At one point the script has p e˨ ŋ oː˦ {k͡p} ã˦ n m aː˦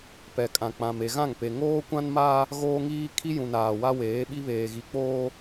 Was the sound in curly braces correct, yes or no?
no